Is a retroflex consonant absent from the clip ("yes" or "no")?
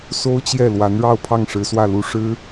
no